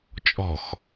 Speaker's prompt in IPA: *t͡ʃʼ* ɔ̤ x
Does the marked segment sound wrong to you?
no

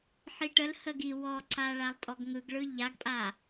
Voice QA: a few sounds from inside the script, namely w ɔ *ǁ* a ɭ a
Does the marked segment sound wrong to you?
yes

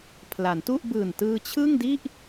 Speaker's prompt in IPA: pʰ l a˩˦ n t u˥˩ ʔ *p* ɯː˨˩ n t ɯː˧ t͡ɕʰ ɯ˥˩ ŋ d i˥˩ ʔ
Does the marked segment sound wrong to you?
yes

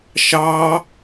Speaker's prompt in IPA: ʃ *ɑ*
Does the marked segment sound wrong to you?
no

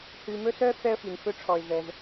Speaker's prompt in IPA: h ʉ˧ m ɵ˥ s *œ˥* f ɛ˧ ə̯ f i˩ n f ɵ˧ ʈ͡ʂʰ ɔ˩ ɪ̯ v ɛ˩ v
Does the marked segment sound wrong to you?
no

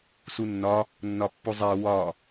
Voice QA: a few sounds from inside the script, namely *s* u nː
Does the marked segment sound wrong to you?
no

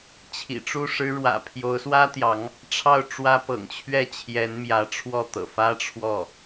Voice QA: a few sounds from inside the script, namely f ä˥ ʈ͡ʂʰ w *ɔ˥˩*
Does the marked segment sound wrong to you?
no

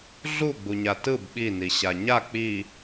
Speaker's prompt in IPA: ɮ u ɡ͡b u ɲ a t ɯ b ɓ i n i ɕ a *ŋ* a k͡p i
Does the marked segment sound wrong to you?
yes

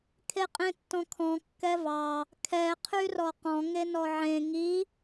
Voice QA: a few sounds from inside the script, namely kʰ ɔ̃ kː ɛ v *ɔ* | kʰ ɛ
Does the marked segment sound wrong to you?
yes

